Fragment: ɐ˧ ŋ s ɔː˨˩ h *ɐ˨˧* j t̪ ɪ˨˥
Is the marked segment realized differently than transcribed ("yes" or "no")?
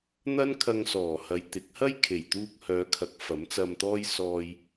no